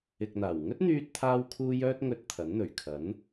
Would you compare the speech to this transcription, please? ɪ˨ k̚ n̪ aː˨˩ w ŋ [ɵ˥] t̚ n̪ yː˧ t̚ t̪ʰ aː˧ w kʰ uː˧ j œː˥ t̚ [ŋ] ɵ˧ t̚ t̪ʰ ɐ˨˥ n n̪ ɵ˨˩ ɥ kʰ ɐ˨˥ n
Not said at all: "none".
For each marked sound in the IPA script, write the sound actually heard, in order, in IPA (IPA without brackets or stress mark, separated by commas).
ɵ˥, ŋ